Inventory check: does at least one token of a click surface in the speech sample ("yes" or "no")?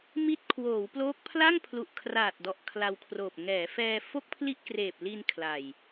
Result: no